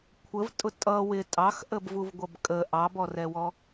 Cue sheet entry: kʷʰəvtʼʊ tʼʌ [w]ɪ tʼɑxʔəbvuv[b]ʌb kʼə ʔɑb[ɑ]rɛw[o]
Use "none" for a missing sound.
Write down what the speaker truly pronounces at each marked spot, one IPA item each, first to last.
w, ɡʷ, ɔ, ɔ

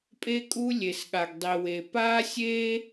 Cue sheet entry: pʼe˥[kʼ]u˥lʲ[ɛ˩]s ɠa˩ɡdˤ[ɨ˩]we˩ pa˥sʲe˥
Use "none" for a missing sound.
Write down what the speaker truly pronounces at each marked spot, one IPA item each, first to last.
kʼ, e˩, i˩

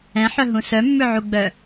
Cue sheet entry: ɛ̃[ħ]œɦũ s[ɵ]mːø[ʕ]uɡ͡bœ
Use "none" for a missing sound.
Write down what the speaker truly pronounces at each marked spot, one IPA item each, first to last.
ħ, œ, ʕ

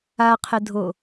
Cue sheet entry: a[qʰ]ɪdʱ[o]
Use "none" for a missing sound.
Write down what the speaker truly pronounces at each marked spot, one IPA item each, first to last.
qʰ, o

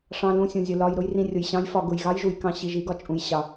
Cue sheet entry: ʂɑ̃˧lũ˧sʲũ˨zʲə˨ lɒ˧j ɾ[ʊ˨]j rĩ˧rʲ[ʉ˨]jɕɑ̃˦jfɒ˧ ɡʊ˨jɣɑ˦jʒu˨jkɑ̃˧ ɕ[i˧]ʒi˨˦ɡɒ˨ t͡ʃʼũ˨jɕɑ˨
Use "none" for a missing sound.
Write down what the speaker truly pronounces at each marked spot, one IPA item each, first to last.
ʊ˦, ʊ˨, i˨

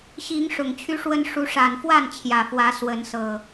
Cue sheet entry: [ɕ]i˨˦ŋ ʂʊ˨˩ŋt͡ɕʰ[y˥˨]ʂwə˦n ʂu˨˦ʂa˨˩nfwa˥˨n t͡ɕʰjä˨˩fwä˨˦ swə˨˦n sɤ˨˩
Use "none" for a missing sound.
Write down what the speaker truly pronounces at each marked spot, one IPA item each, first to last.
ɕ, y˦

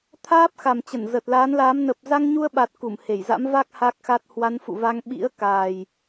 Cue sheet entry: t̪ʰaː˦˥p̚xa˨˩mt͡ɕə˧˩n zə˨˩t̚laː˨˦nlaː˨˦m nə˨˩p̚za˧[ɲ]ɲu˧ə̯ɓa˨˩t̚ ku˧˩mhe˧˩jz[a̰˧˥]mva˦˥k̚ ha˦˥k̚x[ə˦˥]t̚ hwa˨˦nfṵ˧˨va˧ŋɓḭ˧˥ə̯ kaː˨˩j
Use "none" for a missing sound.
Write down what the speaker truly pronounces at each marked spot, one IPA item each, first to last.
ŋ, a̰˧˥, a˦˥

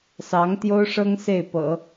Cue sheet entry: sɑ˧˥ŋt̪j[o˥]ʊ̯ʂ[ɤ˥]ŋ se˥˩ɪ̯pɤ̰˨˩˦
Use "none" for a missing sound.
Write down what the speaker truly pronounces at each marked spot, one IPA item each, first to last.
o˥, ɤ˥

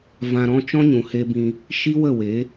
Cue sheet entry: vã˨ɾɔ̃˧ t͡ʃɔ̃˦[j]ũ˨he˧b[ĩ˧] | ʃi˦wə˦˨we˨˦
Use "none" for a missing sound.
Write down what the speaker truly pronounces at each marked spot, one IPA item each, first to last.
ɲ, ĩ˧

